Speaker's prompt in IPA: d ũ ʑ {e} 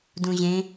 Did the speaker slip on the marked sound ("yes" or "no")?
yes